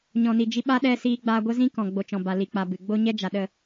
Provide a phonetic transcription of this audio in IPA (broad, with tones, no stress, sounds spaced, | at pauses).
ɲ ɔ̃˨ n i˨ d͡ʒ i˧ ɓ a˦ ɗ ɛ˧ s iː˧ ɡ͡b aː˧ ɡʷ ə˦ z ĩ˦ k ɔ̃˨ ɡ͡b o˨ t͡ʃ ɔ̃˨ b a˨ l i˨ k͡p a˨ b ɨ˨ ɡ͡b o˦ ɲ ɛ˦ d͡ʒ a˨ ɗ ə˦˨